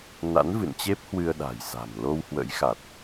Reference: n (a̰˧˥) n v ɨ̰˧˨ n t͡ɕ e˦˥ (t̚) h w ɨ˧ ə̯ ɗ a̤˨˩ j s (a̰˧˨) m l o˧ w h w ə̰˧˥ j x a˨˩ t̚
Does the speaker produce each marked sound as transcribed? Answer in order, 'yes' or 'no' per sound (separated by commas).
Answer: yes, no, no